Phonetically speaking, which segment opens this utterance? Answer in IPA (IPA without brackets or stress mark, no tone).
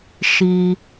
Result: ʃ